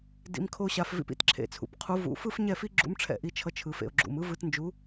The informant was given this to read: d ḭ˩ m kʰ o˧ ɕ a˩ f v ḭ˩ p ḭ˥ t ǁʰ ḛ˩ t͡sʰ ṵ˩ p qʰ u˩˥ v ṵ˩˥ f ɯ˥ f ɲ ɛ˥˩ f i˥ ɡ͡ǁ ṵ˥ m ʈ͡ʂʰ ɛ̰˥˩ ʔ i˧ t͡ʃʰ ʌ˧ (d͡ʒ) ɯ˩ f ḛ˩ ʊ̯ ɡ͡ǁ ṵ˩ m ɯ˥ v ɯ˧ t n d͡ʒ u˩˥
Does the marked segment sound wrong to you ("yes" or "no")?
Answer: yes